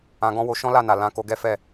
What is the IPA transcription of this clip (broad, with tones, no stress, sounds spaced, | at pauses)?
ã˧ ɡ ɔ̃˦ w o˧ ʃ ɔ̃˦ l a˦˨ n a˨ l ã˨˦ k o˧ ɡ ɛ˦ f ɛ˦˨